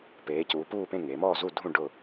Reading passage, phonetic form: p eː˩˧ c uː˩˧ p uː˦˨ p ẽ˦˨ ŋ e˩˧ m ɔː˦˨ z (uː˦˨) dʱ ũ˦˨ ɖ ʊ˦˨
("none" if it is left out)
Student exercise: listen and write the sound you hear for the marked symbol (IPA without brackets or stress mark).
u˦˨